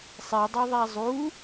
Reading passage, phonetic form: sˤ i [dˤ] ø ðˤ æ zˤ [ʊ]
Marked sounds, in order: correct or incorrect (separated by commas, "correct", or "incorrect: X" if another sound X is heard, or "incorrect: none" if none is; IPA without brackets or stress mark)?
correct, incorrect: u